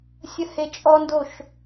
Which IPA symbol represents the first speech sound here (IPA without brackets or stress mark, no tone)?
sʲ